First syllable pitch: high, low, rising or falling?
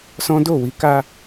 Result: high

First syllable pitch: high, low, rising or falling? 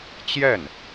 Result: falling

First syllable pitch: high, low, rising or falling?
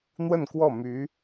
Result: falling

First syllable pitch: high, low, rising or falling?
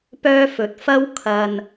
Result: high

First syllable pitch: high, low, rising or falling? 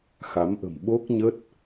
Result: rising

